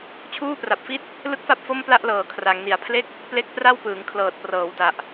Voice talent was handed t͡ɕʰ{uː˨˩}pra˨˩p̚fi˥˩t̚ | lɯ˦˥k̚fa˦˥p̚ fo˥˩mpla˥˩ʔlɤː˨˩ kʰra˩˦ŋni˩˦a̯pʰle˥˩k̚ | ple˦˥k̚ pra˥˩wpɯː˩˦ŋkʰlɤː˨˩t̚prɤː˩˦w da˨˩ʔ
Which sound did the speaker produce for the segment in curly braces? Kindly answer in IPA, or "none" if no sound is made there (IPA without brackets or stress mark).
uː˥˩